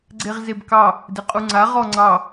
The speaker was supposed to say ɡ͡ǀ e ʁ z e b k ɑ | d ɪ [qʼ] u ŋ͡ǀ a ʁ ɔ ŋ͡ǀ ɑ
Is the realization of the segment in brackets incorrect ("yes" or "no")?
no